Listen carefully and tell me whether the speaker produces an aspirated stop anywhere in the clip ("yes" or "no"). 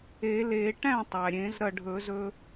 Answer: no